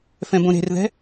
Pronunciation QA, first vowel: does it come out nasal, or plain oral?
nasal